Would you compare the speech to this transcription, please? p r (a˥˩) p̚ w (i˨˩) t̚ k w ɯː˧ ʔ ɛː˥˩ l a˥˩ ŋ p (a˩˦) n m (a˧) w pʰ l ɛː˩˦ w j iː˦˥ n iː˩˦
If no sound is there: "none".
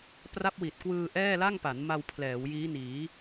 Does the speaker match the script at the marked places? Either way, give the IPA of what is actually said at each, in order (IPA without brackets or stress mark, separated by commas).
a˦˥, i˨˩, a˩˦, a˧